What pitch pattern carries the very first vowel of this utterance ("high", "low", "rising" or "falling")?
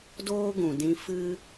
high